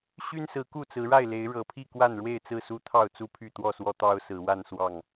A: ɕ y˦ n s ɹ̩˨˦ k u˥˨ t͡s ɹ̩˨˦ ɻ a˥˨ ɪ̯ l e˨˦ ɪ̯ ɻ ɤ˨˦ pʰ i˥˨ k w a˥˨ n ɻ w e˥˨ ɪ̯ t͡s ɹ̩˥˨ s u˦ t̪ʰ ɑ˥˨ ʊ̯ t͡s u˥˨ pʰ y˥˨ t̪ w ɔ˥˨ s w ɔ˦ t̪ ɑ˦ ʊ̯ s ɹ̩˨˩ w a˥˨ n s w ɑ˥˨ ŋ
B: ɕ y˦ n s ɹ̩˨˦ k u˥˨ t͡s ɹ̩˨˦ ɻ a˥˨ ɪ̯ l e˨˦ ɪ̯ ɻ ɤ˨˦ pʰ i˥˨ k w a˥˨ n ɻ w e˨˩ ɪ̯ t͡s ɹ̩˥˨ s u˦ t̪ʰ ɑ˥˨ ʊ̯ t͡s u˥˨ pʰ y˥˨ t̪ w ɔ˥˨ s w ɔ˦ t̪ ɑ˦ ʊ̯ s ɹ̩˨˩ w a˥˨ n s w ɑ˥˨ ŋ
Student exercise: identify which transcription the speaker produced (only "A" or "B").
A